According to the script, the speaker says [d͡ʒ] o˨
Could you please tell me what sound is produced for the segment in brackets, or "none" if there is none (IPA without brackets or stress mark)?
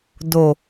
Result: d